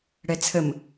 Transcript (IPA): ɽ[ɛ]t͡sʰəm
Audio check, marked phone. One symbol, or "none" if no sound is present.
ɛ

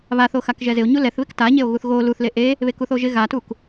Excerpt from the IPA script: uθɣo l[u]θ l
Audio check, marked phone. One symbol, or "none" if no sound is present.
u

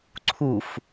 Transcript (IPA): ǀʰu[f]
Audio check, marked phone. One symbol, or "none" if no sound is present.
f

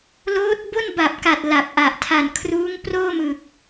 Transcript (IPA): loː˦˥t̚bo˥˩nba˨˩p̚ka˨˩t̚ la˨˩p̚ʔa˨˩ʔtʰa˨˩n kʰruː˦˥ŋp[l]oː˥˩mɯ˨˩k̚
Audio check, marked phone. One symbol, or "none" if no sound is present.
r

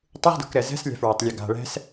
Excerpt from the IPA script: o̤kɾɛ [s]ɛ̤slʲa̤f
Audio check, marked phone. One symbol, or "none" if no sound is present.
z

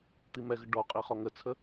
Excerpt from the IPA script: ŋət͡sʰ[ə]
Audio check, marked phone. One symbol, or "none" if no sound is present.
ə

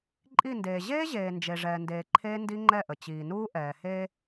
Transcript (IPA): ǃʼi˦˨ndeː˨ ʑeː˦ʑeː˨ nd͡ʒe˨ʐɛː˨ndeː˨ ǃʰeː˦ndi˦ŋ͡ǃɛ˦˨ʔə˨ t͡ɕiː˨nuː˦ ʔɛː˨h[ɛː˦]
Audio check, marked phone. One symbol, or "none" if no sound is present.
eː˦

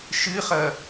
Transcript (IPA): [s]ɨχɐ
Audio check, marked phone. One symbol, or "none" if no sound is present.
ʃ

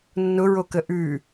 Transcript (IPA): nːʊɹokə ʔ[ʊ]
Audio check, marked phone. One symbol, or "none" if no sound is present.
ʉ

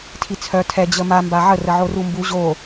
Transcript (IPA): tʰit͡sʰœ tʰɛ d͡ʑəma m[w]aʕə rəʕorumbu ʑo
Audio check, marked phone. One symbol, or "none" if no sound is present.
b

